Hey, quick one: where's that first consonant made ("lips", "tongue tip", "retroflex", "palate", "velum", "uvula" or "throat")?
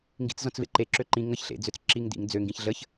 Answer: velum